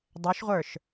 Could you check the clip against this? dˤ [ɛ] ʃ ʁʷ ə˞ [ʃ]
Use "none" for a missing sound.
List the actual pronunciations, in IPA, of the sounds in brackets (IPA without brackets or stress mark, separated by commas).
ɛ, ʃ